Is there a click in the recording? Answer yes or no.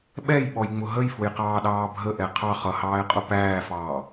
no